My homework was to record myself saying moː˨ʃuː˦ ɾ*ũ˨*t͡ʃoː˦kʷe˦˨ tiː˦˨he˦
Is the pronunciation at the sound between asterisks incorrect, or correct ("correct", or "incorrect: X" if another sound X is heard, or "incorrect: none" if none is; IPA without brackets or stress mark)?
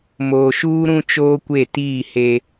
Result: incorrect: ũ˦